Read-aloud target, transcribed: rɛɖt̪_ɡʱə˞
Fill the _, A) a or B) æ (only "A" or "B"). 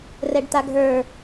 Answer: A